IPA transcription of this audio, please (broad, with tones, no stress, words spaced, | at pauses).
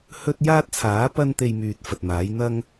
hɵ˥t̚ jaː˥t̚t͡sʰaː˨˥ pɐ˥n t̪e˧jmyː˨t̚ fɐ˨t̚maː˨˥j n̪ɐ˥ŋ